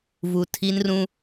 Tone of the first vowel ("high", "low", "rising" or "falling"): low